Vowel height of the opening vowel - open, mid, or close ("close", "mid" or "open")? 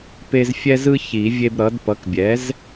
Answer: mid